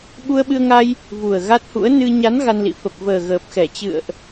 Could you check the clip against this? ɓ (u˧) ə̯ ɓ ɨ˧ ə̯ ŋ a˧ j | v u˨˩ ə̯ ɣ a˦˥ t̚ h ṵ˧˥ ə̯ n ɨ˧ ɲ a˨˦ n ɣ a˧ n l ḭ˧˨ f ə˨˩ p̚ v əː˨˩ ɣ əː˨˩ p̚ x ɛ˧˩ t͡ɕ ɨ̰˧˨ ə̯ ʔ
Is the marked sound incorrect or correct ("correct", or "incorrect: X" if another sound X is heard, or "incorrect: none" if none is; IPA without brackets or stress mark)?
correct